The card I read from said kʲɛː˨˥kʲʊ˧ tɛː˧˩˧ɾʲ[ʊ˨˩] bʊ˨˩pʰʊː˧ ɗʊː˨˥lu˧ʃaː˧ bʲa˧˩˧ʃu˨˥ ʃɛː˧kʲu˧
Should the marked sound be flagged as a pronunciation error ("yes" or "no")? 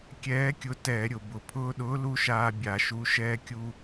no